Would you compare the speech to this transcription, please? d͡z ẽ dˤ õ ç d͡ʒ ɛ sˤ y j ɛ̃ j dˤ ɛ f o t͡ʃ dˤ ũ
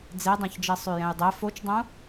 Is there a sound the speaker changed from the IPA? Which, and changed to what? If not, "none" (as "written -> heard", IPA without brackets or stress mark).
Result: ẽ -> e